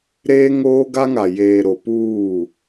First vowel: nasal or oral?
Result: oral